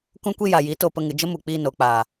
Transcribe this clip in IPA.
k ũ˦ kʷ i˦ j a˨ j i˨˦ t o˧ p ə˧ ŋ ɨ˨ d͡ʒ ə˦ m u˨ k͡p iː˧ n o˨ k͡p aː˨

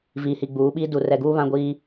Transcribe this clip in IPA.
v iː˨ h i˨ ɡ͡b uː˨˦ ɓ iː˦ d u˨ r ɛ˨ ɡ uː˦ β ã˦ ɡʷ iː˦

